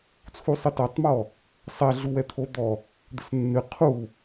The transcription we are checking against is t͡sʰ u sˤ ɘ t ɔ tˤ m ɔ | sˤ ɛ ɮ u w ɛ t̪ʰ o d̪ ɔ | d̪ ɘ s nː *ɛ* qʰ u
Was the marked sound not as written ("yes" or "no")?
yes